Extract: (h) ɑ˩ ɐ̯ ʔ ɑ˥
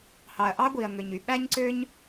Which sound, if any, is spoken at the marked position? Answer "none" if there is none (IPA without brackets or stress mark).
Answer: h